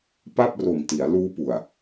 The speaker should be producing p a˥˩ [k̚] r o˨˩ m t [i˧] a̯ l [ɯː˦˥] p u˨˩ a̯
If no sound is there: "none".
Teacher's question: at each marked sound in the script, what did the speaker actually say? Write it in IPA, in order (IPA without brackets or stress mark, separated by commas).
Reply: p̚, i˩˦, uː˦˥